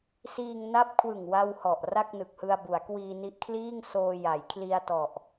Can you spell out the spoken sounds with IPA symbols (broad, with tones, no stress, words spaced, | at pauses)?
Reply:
siː˧ŋ na˦˥p̚kʰwɯ˨˩ŋwa˧w hɔ˨˩ʔ ra˥˩k̚nɯ˨˩k̚hɯ˧a̯bu˩˦a̯ kwiː˧ni˦˥ʔkʰliː˥˩ŋsoː˧ ja˩˦j kʰli˧a̯tɔ˨˩ʔ